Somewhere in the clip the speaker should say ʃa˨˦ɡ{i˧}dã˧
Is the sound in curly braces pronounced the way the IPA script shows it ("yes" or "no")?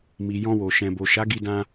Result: yes